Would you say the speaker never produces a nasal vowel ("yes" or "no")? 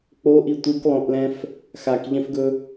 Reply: no